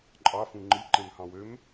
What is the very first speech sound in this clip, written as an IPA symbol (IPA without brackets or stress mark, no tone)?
ǃʼ